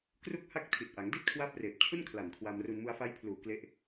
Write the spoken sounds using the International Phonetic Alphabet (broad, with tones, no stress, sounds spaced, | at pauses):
k r u˥˩ k̚ h a˥˩ k̚ tʰ i˨˩ t̚ ʔ a˩˦ ŋ d i˥˩ t̚ kʰ w a˦˥ p̚ r eː˨˩ p̚ t͡ɕʰ u˥˩ n kʰ l a˨˩ n kʰ w a˧ m r u˧ n m u˧ a̯ f a˦˥ j pʰ l uː˨˩ k l e˦˥ ʔ